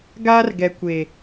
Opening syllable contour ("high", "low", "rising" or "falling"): high